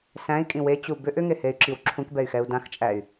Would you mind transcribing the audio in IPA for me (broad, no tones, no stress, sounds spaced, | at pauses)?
s æ̃ i̯ kʼ ĩ w e t͡ɕ u b ʏ ʔ ʏ ŋ e h e y̯ ǁ i w ǁʰ ũ k b ɛ y̯ x ɛ u̯ d ã x t͡ʃʼ æ y̯